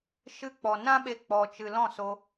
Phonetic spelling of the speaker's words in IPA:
ʃɨ˧k͡pɔ˨nã˦ɓe˧ k͡pɔ˨t͡ʃɨ˨ lɔ̃˦˨so˧

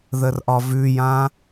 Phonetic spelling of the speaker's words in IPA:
ðərʔɒvʉjã

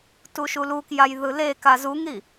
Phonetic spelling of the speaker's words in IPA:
tuʃulukjaj ðɯleka zuŋɾi

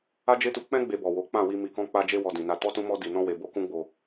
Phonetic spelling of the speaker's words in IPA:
a˦d͡ʒe˦tu˧ k͡pɛ̃˦ ɡ͡be˧bɔ˨wo˨˦ k͡pã˦˨wi˧ mi˧kɔ̃˦k͡pa˦d͡ʒe˦ wɔ˧dĩ˨na˧ tɔ˦tũ˦mɔ˦ di˧nɔ̃˦we˧ bo˦kũ˦ɡ͡bo˧

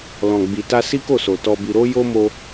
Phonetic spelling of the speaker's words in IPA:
lɔ̃˨ɡ͡bi˨ta˧ si˦ko˦˨so˨ tɔ˧bi˧ ɾo˦jo˦ mo˦

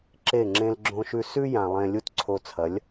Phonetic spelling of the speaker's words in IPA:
ǁe˦˨ŋ͡ǁẽ˦lɡ͡ǁõ˦ʃʉ˦ sʉ˦ jã˨ lˠẽ˨ lʲu˦tǀʰo˧t͡sʰɐ˨˦lʲ

